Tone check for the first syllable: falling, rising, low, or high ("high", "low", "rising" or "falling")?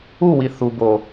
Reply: falling